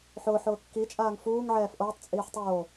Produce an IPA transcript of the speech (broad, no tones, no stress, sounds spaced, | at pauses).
ħ ʊː ħ ʊː kː i t͡ʃʼ aː ŋ f uː ŋ ʕ ɛː f ʔ oː tˤ t͡sʼ iː ħ tˤ oː